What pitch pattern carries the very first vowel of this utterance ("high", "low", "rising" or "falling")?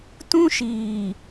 high